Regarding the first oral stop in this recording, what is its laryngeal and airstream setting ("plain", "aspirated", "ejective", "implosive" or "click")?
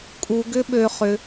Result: ejective